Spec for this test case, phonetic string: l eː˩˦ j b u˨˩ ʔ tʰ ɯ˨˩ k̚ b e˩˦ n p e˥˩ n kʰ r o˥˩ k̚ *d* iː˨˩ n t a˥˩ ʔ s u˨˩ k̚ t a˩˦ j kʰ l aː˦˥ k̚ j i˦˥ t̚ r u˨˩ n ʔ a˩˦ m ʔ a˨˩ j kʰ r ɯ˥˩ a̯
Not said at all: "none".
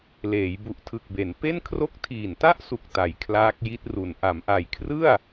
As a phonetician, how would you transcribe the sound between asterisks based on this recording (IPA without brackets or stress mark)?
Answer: tʰ